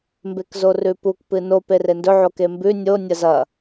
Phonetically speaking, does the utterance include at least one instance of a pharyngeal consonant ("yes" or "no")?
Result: yes